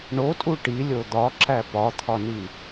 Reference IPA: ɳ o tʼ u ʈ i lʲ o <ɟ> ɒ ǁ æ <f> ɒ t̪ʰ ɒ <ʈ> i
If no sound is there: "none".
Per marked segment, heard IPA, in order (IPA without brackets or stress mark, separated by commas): d̪, p, n